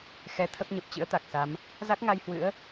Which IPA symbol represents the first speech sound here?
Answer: x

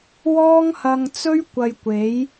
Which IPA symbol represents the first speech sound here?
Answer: w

